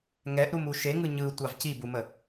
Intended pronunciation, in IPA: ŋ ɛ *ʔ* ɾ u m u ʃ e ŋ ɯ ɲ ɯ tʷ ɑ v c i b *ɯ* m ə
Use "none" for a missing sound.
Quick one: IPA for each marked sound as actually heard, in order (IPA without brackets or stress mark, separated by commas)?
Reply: ʔ, u